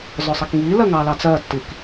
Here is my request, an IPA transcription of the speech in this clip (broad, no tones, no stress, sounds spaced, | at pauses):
z ɔ sˤ ɛ k ŋ iː l ɜ ŋ ɑ l ɑ t͡s ɜ tː i k